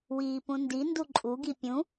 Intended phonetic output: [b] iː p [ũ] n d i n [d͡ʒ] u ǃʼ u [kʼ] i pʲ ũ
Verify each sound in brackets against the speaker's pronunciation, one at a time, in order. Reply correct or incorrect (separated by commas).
incorrect, correct, incorrect, incorrect